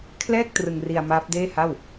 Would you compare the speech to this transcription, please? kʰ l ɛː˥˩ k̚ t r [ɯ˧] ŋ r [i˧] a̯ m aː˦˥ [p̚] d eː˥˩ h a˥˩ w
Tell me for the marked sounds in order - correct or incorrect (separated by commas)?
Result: correct, correct, correct